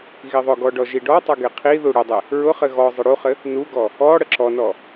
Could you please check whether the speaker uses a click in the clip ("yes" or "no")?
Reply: yes